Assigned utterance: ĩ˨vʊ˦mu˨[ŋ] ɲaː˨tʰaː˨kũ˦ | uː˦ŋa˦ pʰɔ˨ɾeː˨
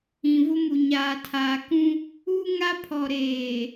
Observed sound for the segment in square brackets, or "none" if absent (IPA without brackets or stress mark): none